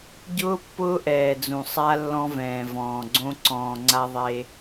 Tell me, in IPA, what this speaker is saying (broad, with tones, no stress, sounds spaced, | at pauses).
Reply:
ɟ ʊː˦ pː ʊː˦ ʔ ɛː˨ d͡z ũ˨ sˤ a˦ lː ɔ̃˦ v ɛ̃ː˨ v ɔ̃ː˨ ɡ͡ǀ õ˦ ǀ ɔ̃ː˨ ŋ͡ǀ a˦ ðˤ e˦